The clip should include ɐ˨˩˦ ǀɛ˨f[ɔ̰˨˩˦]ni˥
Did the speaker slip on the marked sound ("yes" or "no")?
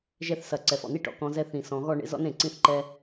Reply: yes